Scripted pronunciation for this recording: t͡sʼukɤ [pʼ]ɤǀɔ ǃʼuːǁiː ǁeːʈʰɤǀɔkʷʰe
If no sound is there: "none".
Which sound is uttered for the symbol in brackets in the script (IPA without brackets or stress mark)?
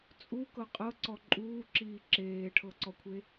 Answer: qʼ